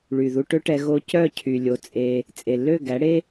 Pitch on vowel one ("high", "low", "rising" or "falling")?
low